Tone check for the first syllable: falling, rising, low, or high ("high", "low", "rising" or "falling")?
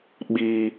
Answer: high